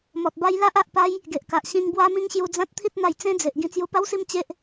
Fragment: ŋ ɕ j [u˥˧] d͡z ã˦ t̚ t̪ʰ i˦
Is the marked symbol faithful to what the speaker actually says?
no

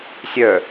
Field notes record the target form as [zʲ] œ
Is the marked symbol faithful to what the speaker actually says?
no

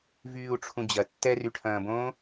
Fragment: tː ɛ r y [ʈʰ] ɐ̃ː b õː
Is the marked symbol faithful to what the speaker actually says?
yes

